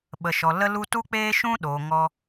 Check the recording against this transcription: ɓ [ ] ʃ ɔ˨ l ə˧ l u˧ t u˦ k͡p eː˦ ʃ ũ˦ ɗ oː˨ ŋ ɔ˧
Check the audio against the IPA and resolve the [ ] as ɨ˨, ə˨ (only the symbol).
ə˨